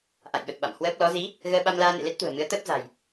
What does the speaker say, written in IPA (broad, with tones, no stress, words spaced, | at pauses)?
ʔa̰˧˨jɓə˨˩t̚ɓa̰˧˨m hwəː˦˥p̚ lɔ˨˦zi˨˦ | ɣəː˧ɓa˧mlaː˧nḛ˧˨ le˦˥t̚t̪ṳ˨˩ə̯ mɨ˨˦ə̯t̪əː˦˥p̚za̤˨˩j